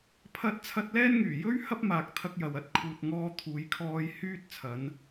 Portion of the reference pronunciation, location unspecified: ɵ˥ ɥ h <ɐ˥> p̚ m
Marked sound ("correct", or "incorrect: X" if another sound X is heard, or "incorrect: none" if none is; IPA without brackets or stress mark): correct